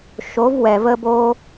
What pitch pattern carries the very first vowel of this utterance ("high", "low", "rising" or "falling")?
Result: rising